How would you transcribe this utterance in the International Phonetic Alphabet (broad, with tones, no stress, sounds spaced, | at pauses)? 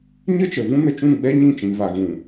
ɲ ə˦ t͡ʃ ə˨ v ũ˦ n ə˧ t͡ʃ ũ˦˨ ɡ͡b ɛ˦ ɲ ĩ˦˨ t͡ʃ ĩ˨ v a˨ ɣ ũ˨